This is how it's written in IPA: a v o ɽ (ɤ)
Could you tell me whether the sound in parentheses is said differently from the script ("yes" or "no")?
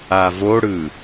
yes